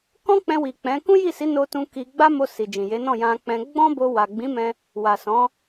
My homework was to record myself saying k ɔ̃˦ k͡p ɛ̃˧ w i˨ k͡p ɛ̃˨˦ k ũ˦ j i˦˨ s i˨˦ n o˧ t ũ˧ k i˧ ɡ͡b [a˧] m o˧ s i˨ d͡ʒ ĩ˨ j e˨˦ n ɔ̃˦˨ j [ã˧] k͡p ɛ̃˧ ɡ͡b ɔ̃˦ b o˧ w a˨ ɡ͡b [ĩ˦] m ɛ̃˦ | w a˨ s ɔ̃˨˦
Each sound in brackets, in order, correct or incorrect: incorrect: a˦, correct, incorrect: ĩ˨˦

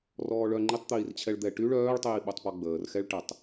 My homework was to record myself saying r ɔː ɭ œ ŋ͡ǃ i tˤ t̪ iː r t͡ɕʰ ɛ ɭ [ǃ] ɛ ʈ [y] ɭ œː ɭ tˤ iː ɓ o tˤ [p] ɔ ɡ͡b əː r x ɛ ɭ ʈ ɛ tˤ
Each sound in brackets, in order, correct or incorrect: incorrect: d̪, correct, correct

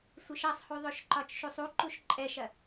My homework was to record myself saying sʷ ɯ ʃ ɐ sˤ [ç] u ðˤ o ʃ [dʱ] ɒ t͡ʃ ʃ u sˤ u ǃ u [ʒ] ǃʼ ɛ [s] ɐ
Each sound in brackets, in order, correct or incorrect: incorrect: h, incorrect: ǃ, incorrect: ʃ, incorrect: ʃ

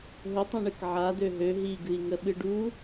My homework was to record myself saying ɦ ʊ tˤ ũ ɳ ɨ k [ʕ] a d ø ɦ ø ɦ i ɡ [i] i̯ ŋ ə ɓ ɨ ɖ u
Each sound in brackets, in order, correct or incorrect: correct, incorrect: ɨ

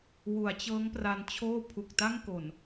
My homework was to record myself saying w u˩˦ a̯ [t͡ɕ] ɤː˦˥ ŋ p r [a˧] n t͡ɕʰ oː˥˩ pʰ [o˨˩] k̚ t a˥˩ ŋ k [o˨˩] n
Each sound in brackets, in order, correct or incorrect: correct, correct, incorrect: u˨˩, correct

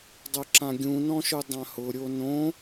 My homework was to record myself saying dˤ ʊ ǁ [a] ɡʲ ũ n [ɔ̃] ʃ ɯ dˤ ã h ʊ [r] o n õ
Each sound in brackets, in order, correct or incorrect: incorrect: ã, correct, incorrect: ɾʲ

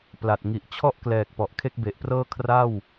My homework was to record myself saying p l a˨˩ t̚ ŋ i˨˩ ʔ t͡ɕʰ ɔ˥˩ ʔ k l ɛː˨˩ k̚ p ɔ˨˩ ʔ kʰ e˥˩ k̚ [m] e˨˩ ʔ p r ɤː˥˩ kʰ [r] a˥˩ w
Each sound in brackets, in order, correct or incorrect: incorrect: b, correct

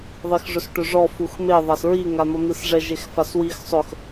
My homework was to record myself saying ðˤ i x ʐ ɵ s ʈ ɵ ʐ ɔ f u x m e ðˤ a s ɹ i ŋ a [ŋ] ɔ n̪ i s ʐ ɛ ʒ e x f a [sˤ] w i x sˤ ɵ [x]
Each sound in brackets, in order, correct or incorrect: incorrect: n̪, incorrect: s, correct

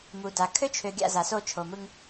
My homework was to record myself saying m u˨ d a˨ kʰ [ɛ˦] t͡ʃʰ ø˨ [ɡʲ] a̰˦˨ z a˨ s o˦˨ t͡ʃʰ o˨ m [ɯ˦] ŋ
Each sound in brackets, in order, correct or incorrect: incorrect: ø˦, correct, correct

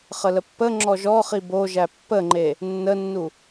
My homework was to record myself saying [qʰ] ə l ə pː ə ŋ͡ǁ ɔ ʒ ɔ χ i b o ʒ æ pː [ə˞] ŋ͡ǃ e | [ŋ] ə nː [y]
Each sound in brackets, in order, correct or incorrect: incorrect: χ, incorrect: ə, incorrect: nː, incorrect: u

